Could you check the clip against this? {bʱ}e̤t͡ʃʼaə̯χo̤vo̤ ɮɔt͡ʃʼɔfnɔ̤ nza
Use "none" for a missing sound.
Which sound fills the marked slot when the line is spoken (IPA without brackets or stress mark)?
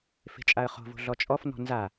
f